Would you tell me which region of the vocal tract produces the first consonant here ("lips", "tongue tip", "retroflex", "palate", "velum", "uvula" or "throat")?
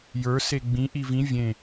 palate